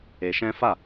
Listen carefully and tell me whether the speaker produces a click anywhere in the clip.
no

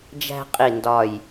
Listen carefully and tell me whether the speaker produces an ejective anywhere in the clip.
yes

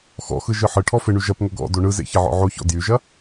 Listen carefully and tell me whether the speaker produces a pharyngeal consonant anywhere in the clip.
yes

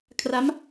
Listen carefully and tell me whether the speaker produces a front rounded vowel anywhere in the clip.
no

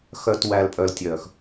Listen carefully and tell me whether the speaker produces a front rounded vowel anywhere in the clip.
yes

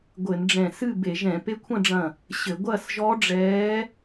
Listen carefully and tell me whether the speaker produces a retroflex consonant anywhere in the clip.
yes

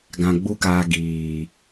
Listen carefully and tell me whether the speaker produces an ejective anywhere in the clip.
no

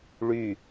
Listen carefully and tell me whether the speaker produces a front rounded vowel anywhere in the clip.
yes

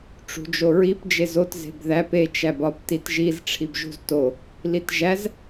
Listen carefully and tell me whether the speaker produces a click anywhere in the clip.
no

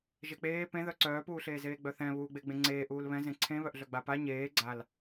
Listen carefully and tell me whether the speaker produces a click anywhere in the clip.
yes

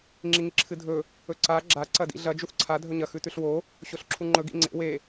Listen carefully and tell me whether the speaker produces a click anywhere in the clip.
yes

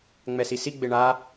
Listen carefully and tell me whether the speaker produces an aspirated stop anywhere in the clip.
no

